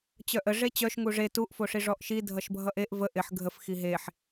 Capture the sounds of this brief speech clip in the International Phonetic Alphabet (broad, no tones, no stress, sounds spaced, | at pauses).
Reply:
t͡ɕ œ ʔ ə ʐ e t͡ɕ œ ʃ ŋ u ʐ e t u ʔ f o ʂ i ʐ ɔ ʔ ʃ i dʱ ʌ ʃ bʱ ʌ ʔ e ʔ v ə ʔ ɪ ħ ɡʱ ə f x i ɦ e ħ